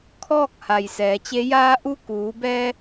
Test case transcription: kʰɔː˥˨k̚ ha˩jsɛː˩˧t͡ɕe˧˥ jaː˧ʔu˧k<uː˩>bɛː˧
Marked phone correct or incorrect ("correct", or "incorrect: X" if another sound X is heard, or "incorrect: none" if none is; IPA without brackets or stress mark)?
incorrect: uː˩˧